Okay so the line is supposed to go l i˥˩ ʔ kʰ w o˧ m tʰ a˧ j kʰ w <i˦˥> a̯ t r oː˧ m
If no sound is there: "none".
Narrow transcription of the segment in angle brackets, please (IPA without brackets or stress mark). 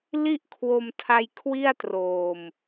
i˥˩